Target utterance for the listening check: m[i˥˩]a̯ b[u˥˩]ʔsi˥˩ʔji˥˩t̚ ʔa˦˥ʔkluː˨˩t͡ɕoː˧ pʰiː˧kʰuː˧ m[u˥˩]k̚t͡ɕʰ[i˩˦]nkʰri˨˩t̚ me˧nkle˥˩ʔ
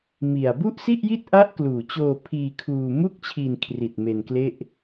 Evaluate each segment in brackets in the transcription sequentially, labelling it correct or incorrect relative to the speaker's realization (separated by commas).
incorrect, correct, correct, incorrect